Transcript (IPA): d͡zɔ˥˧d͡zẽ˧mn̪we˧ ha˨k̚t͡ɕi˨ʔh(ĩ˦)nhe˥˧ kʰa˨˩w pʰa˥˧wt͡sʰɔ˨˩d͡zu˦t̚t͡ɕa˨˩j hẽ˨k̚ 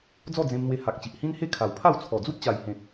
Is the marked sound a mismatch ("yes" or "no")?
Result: no